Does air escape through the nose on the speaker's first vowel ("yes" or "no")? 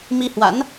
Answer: no